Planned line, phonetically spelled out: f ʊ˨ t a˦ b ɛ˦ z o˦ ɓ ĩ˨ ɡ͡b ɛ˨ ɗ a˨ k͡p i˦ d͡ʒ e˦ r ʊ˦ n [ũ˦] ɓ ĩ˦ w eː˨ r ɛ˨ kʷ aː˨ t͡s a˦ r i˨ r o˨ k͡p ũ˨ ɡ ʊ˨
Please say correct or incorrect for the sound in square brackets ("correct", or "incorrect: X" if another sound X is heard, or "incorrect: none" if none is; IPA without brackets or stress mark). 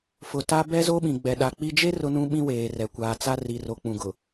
correct